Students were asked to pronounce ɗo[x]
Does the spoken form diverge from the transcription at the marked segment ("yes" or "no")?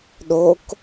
yes